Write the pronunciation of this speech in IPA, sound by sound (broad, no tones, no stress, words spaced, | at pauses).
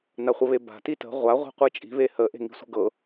naχʷəβeba̤ titə̤ ʁʷa ʁʷi̤qʷɯt͡ʃʼi̤ βehə ʔe̤ŋi̤sʷə̤ɡɤ